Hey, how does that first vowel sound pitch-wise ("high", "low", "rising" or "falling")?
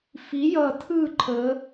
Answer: rising